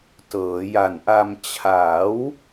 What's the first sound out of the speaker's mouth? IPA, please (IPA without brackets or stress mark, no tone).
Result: t